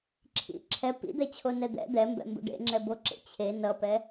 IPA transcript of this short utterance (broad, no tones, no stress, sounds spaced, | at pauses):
ǁʰ ḭ ǁʰ ɛ p ḭ d̪ ɛ t͡ɕʰ o n ɛ d̪ ɛ̰ d̪ ɛ m b ɛ̰ m b ṵ ɖ ḛ ŋ͡ǁ ɛ b o ǁ ḛ t͡ɕʰ e n ʌ p ɛ